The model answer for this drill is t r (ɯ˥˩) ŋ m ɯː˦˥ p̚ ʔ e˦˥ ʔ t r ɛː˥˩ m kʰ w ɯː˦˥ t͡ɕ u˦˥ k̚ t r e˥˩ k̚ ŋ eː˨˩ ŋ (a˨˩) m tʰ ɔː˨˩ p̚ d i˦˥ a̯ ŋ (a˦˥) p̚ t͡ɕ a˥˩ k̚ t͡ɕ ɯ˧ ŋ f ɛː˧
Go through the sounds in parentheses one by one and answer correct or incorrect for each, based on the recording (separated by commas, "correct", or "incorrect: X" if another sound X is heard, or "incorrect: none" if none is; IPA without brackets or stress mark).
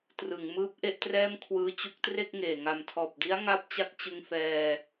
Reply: incorrect: ɯ˩˦, correct, incorrect: a˥˩